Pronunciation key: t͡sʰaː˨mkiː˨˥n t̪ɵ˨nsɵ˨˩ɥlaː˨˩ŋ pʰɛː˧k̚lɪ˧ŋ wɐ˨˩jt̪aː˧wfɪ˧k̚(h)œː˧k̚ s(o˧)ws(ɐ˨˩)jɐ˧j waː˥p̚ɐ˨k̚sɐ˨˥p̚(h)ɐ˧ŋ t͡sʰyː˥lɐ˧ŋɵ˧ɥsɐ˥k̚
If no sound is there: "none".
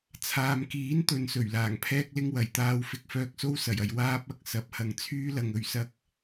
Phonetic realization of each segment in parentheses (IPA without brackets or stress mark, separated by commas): f, o˥, ɐ˨˩, h